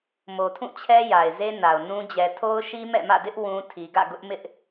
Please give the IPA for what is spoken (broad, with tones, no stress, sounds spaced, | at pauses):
m o˨ tʰ ũ˦˨ t͡ɕʰ ɛ˦ j a˨ ɪ̯ z e˦ n a˨ ʊ̯ n ũ˦ d͡ʑ ɛ˨ tʰ o˦ ʊ̯ ʃ i˦ m ɛ̰˦˨ m ä̰˦˨ d ɪ˦ ʔ w ũ˦ tʰ i˨ ɡ ä̰˦˨ ɡ ʊ˦ ʔ m ɪ˦ ʔ